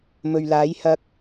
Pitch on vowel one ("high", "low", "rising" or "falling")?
low